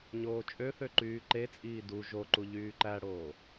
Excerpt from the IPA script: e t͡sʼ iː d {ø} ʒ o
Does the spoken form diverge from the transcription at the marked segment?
yes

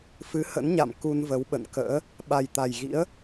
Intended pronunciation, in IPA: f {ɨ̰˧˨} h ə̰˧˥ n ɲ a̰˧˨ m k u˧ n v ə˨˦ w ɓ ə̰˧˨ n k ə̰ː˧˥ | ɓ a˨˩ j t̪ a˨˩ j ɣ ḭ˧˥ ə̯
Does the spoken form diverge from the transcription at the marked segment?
yes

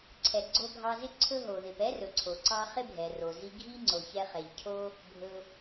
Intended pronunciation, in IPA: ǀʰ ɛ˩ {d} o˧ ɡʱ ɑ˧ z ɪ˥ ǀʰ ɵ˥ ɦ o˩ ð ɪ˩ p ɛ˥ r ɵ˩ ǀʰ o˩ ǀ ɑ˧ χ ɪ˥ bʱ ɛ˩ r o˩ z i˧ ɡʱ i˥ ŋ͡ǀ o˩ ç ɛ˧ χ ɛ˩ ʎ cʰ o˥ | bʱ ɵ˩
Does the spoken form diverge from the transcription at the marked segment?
yes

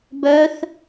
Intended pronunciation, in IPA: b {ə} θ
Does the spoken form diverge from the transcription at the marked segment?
yes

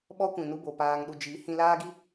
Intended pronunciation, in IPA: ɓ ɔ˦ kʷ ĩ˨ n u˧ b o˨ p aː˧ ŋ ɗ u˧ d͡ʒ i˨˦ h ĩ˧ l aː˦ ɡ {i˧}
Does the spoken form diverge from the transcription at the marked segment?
yes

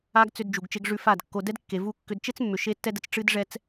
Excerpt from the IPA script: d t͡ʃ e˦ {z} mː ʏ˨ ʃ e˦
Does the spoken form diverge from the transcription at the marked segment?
yes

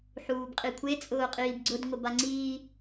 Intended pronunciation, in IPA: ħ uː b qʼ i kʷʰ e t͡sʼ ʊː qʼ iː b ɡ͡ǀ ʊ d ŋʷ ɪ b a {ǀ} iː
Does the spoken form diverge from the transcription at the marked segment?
yes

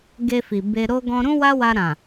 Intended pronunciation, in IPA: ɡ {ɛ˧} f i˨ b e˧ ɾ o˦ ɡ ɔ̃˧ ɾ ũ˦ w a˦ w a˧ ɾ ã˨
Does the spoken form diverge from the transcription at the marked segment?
yes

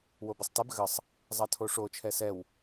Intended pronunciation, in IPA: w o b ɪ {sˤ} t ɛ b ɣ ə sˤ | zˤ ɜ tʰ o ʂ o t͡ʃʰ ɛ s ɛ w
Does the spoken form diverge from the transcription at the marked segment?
no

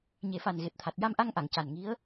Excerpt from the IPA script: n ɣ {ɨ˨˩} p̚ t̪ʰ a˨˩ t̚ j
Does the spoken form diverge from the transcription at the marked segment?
yes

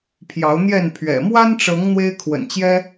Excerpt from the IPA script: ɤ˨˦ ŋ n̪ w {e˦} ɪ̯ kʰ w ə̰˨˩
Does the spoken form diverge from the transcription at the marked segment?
no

